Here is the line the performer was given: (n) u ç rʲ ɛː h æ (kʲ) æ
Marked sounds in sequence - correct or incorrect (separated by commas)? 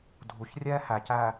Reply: incorrect, incorrect